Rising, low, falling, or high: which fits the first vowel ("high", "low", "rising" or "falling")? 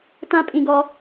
high